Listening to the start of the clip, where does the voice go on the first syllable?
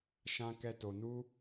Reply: high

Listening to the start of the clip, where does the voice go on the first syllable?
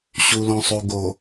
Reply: low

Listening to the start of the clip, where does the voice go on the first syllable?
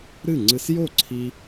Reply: falling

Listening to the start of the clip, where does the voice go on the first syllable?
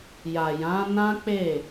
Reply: low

